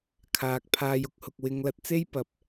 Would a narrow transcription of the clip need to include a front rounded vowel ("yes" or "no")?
no